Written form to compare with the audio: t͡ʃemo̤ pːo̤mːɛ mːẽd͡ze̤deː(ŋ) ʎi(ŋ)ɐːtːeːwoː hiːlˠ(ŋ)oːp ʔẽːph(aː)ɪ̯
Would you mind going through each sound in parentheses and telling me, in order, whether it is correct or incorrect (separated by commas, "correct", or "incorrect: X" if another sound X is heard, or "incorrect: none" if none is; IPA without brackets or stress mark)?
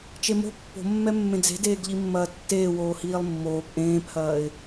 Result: incorrect: ɡ, incorrect: mː, incorrect: mː, incorrect: ɐː